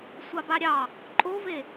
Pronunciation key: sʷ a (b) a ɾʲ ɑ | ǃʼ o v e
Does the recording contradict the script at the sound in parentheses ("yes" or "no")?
no